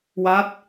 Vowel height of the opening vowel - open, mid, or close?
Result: open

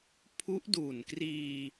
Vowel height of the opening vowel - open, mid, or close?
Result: close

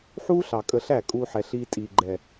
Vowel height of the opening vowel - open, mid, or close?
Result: close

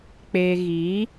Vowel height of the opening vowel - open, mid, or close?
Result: mid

